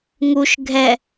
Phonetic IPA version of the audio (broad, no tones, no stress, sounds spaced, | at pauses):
ŋ u ʃ ɡʱ ɛ